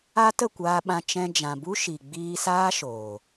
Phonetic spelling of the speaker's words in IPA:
a˦tə˦˨kʷaː˧ɓã˧ t͡ʃɛ̃˧ d͡ʒã˨ bu˦ʃi˨ ɡ͡biː˧saː˦ʃoː˨

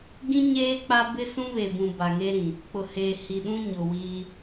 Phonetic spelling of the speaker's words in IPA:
ɡĩ˦ ɲeː˦k͡pa˦bɪ˦ sũ˦βe˨bũ˨ ba˨ŋe˦ɾĩ˨ | k͡pʊ˨heː˨ hi˨ɗũ˦ ɲʊ˨wiː˦

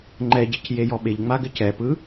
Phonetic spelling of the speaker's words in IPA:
ŋ͡ǃɛɟec jejɔɓeʎŋ͡ma ɡɘcɛpɯ

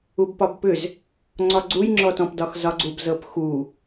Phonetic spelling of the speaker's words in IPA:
ubpɒbpʏz | ŋ͡ǀɒɡ͡ǀujŋ͡ǁɔtɔ̃p dɒxzɒɡ͡ǀub zɤpxu

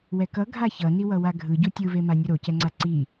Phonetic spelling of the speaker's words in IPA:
wɛkʌ ɡʱaçʌ niwʌwaɡʱɯ ɟutʲɯvema nʲuɾocɛŋ͡ǀa ǀi

